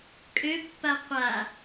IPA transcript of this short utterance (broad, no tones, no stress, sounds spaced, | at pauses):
kʼ ø pː a qʷ a